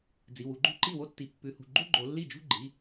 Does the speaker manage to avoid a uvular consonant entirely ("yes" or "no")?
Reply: yes